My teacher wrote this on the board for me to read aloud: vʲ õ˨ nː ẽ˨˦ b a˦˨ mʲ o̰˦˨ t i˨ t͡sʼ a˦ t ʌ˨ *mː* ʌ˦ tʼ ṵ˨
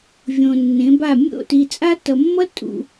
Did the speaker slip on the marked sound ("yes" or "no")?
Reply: no